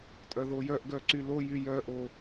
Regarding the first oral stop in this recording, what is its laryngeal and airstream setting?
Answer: ejective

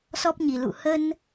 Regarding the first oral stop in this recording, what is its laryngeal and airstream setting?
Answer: plain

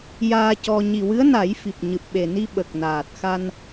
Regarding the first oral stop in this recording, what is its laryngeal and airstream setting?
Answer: plain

